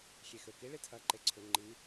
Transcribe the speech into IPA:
xʲ e x ø k i ɭ i tʰ ɐ ǃ e ǀʰ ʏ ŋ͡ǃ i

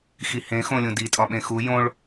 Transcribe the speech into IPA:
x i h ẽ x õ lʲ ũ d i tʼ ɒ ɓ ẽ x u j õ ɭ

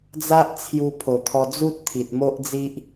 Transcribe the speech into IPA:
d͡z a˦ ʔ t͡sʰ j u˧ pʰ o˨˩ t̪ʰ ɔ˧ d͡z u˦ t̚ t̪ʰ i˨ t̚ m o˦ ʔ d͡z i˦ ʔ

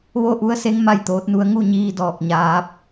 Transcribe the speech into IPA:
ʋ o˥˨ ʔ u˧˥ ə̯ s e˧˥ ŋ m a˥˨ j t̪ oː˧˥ t̚ n u˧˥ ə̯ ŋ u˥˨ ɲ iː˧ d ɔː˧˩ k̚ ɲ aː˧˥ p̚

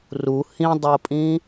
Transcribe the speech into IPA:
r u h ĩ dˤ o pʼ ĩ

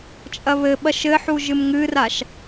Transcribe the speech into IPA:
t͡ʃʼ ɐ β ɘ ɓ ɐ ʃ ɘ ħ u ʒ ɨ m ŋ ɨ r a ʃ

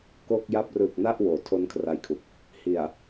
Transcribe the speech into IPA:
k o˥˩ k̚ j a˥˩ p̚ r ɯ˨˩ k̚ n a˥˩ ʔ w oː˨˩ tʰ o˦˥ n kʰ r a˧ j kʰ u˨˩ k̚ | h i˨˩ a̯

